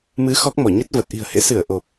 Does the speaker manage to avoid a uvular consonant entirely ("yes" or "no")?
yes